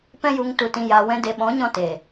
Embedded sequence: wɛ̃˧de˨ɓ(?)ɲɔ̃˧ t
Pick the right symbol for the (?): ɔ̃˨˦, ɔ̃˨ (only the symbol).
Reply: ɔ̃˨˦